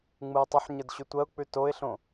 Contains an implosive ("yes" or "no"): no